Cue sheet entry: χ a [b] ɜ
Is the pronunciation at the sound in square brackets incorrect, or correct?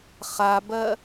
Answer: correct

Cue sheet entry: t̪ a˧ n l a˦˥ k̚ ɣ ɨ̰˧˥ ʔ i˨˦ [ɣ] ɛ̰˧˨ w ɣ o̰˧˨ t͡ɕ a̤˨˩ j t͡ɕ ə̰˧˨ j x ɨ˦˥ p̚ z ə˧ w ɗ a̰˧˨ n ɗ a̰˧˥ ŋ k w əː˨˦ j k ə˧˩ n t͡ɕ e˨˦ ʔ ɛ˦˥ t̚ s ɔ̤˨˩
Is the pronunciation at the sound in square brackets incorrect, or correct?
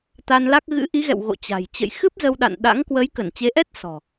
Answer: correct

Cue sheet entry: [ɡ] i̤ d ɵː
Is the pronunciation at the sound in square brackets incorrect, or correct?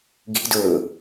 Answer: correct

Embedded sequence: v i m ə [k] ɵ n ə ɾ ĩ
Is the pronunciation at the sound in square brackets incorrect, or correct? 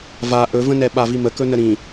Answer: correct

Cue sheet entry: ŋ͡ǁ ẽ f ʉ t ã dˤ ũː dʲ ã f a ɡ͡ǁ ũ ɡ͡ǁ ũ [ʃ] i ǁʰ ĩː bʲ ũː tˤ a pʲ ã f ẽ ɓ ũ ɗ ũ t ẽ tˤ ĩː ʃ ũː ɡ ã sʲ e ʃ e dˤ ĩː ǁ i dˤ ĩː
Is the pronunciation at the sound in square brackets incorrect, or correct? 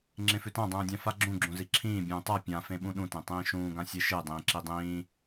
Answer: incorrect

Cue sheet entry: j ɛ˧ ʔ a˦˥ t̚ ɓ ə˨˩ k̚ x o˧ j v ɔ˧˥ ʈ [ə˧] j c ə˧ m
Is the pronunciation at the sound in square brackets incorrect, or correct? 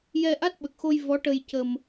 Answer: correct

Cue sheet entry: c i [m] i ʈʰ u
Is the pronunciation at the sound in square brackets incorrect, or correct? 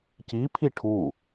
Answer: incorrect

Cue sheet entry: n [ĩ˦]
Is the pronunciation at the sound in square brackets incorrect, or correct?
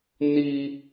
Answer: incorrect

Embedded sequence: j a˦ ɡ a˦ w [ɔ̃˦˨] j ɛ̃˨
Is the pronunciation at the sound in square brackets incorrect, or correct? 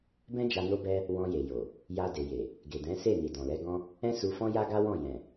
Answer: correct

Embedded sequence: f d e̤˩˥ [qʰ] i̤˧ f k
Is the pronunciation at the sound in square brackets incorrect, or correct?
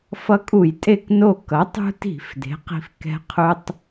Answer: incorrect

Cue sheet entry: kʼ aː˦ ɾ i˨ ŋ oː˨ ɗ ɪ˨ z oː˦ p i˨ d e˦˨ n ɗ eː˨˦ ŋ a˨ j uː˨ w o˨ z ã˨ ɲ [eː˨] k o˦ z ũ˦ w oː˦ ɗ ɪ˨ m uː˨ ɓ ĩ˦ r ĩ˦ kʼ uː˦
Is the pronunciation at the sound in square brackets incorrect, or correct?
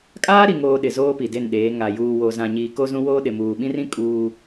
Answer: incorrect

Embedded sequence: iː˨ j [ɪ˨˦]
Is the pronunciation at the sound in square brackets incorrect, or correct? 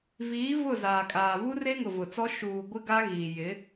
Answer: correct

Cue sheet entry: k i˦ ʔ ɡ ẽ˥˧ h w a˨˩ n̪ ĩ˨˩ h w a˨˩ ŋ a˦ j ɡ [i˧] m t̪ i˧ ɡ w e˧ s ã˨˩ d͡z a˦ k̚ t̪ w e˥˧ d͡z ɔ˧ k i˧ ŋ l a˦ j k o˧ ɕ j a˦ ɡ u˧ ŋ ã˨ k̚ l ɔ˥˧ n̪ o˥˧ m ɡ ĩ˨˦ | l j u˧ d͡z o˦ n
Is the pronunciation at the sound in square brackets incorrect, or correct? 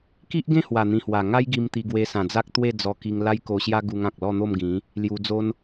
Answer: correct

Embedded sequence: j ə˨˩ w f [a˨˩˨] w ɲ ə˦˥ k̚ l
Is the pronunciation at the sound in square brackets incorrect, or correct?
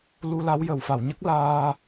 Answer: correct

